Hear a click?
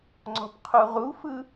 yes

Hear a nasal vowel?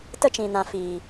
yes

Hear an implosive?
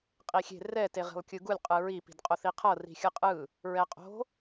no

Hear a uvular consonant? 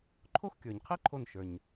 yes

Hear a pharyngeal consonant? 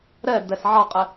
yes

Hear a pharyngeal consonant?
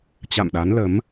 no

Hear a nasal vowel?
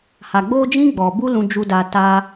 yes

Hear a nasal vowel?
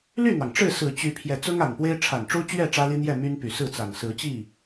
no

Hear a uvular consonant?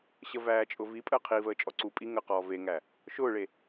yes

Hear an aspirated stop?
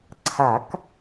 yes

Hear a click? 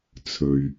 no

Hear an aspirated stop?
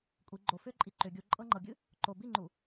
no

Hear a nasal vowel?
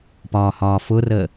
no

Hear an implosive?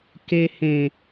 no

